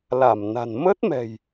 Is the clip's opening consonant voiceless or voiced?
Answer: voiced